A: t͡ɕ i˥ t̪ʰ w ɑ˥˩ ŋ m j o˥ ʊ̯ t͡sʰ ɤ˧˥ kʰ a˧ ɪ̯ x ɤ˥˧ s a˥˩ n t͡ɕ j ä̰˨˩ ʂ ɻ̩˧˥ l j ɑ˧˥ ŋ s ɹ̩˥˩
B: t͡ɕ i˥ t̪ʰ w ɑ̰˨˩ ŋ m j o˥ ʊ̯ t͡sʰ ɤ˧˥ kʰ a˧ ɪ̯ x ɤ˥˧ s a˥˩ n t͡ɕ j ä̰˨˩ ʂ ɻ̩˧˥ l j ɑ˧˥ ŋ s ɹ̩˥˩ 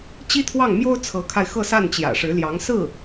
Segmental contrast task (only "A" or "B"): A